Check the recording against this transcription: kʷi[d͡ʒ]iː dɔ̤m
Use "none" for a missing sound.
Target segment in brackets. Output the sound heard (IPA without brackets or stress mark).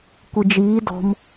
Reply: d͡ʒ